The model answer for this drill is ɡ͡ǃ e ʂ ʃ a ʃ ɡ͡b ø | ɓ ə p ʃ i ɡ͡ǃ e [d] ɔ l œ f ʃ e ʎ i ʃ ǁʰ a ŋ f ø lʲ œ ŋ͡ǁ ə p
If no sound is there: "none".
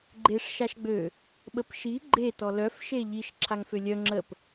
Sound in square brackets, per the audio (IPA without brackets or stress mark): t